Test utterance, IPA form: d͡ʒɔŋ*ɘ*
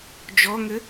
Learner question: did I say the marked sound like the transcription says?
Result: yes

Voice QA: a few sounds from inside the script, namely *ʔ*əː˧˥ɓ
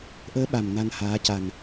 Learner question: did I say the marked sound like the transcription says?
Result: yes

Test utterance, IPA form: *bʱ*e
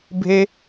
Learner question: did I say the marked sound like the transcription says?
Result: yes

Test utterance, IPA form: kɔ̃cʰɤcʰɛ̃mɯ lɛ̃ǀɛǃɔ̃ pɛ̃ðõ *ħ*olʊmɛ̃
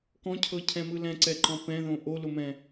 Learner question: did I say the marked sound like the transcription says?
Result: no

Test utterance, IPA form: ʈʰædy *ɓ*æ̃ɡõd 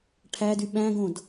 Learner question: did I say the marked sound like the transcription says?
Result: yes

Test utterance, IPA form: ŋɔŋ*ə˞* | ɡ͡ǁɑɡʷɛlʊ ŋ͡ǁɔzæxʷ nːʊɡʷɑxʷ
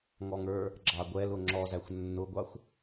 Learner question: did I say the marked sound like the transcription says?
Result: yes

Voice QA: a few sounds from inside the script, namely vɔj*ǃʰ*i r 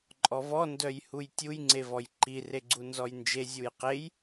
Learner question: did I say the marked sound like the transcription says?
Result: no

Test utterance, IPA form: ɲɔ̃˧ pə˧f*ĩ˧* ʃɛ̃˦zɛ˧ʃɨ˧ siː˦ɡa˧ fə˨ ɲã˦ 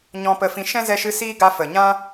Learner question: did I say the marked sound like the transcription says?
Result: yes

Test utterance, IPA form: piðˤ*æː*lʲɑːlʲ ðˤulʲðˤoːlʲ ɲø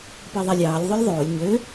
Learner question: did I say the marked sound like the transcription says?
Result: no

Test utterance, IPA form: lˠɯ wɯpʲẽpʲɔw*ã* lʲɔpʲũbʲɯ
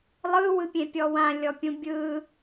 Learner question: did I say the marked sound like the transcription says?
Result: yes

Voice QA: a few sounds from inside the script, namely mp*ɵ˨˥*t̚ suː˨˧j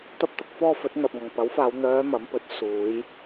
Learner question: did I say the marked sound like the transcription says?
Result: yes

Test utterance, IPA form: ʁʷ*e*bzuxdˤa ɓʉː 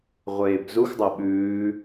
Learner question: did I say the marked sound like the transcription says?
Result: no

